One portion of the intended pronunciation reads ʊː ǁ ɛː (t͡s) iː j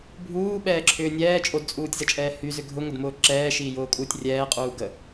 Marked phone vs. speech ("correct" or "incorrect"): incorrect